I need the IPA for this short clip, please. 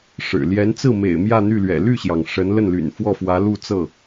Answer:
ʂ ɻ̩˨˩ l j ɛ˧˥ n t͡s ɹ̩˥˩ m ḛ˨˩ ɪ̯ m j ä˥˧ n̪ y˥˩ l ɥ ɛ̰˨˩ l y˥˩ ɕ j ɑ˩ ŋ ʂ ə˧˥ n l ə˥˩ n l y̰˨˩ n f w ɔ˥˩ f w ä˧˥ l u˥˧ t͡s ɤ˥˩

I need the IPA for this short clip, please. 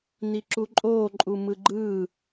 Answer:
n i ǁ u ǃʼ oː ǃʼ u m ɯ ɡ͡ǃ ɯː

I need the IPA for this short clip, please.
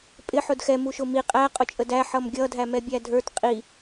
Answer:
pʼ ɪ ħ ʊ d x ɛ m u ʃ ʊ m i qʼ æ qʼ ʊ t͡ʃʼ ə d æ ħ ʌ m ɡʲ ʌ dʱ æ m ɛ bʲ æ dʱ ə˞ t qʼ i

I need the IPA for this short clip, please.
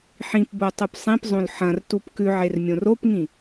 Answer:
ħ ĩ p b o tˤ u p sˤ ĩ p zˤ õ l ħ ɐ̃ r t u p k ʉ ʕ e r mʲ õ r o p ŋ ĩ

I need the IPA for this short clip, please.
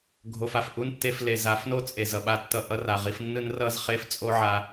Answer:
ɡʱ o˧ f a˨ f ʔ u˦ n tː e˧ f l e˨ z a˨˦ f n o˦ t͡sʼ e˨ z ʌ˨ ɓ a˧ tː ʌ˧ ʔ ʌ˧ r a˨ ʁ i˧ f nː ɯ˦ n r ʌ˦ z χ e˦ f t͡sʼ o˦ ʕ a˧

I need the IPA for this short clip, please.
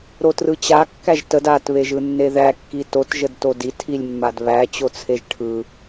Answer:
ɾ o t r ɯ t͡ɕ a kː æ ʒ t ə d a t β e ʒ ɯ nː e ð æ kː i t o t ʒ ə d t o d i tʰ i lʲ mː a d β æ t͡ɕ o t͡sʰ e ʒ ʈʰ ɯ

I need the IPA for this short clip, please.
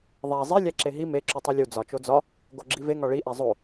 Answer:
ðˤ æ zˤ i lʲ æ ǁ e ɦ i m e ǁ u tˤ i lʲ u d͡z ɒ t͡ʃ o d͡z ɒ | ɡ o ɡ͡ǁ i v e ŋ ɒ ɭ i ʔ æ zˤ o

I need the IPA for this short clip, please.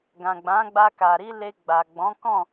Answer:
ɡ ã˨ ɡ͡b ã˨˦ ɡ͡b a˧ k a˨ ɾ i˧ l e˧ ɡ͡b a˨ ɡ͡b ɔ̃˨˦ k ɔ̃˦˨

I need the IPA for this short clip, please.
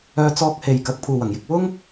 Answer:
œː˧ t͡s ɔː˧ k̚ h e˨ j k ɐ˨˥ k̚ pʰ uː˨ w ɐ˨˩ ŋ j ɪ˨ k̚ w ʊ˥ ŋ

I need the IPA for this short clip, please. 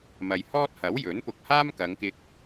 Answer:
m ɐ˨ j h ɔː˥ t̚ h ɐ˨˥ w j ɵ˨˥ n p ʊ˧ k̚ h aː˥ m k ɐ˨˧ ŋ k ɪ˧ k̚

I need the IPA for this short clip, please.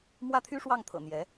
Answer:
m w ä˥˩ t̪ʰ y˥ ʂ w ɑ˥˩ ŋ t̪ʰ ɤ̰˨˩ n̪ j ɛ˧˥

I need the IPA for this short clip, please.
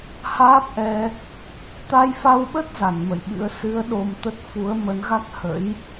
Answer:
h aː˦˥ p̚ ʔ ɛ˧ | t̪ a˧ j f a˧ w ɓ ə˦˥ t̚ z a˧˩ n m ə̰˧˨ j ɓ ɨ̰˧˥ ə̯ s ɨ˨˦ ə̯ ɗ o˧ m t̪ ə˦˥ t̚ f u˨˦ ə̯ m ə˨˦ n ɣ a˦˥ k̚ h ə̰˧˥ j

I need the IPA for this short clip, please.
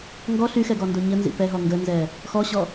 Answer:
ŋ ɡ ɔ ɬ y x ɛ ɡ ɔ n d o ɲ ə n z ḭ p ɛ ɦ ɔ ŋ ɡ ə n z ɛ | x ɔ ɕ ɔ

